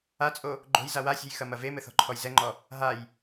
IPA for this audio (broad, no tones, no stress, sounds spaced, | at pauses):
a t͡sʼ o | ɡ͡ǃ o̤ j z a w a sʲ o̤ j x ɐ m ɐ v e m ɘ θ ɔ̤ ǃʰ ɔ j z ɛ ŋ͡ǃ ɔ | ɦ a j